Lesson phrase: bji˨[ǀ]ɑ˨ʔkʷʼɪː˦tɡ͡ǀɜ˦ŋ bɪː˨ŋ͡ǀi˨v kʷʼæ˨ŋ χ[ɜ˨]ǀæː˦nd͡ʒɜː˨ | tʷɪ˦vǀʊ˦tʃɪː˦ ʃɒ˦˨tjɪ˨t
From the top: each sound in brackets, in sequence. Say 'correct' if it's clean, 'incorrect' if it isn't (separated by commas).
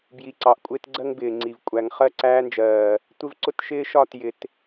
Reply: correct, incorrect